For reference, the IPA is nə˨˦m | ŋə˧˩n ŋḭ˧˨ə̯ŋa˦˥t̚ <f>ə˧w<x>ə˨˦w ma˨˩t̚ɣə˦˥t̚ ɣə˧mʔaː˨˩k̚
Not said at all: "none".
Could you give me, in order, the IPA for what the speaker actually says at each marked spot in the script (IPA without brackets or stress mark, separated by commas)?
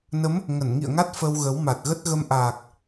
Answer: f, ɣ